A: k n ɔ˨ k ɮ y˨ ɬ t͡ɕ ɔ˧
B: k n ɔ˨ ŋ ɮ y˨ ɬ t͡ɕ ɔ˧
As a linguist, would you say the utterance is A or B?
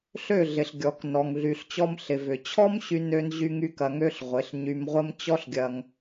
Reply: B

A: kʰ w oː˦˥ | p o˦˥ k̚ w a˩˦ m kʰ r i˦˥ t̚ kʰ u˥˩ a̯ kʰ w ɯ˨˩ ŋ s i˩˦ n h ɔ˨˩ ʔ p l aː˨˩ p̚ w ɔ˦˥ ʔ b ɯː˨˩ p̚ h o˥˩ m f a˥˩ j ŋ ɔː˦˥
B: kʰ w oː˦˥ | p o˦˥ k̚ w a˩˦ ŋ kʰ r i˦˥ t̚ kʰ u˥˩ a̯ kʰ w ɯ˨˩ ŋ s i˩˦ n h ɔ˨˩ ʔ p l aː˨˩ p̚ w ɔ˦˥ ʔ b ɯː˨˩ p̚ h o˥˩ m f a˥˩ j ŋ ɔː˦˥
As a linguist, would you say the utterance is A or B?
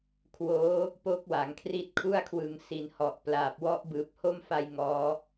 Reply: B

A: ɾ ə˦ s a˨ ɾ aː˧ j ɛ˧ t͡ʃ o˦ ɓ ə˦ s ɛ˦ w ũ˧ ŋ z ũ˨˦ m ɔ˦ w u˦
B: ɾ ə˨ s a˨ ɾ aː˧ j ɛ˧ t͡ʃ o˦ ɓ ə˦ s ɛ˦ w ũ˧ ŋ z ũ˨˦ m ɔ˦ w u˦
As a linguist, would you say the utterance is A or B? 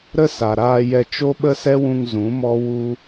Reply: A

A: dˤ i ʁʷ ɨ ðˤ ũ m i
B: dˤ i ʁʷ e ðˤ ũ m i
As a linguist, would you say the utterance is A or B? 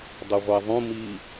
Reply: B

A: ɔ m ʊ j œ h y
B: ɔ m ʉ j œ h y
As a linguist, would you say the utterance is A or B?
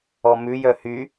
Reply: B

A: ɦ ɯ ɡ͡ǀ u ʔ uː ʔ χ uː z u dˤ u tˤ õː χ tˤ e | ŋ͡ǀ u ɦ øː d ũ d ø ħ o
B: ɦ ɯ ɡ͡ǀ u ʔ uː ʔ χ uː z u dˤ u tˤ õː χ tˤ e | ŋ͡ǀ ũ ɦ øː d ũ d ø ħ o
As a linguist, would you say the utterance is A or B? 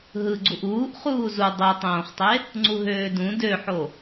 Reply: A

